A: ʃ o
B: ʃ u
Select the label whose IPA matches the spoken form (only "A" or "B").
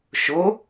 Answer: A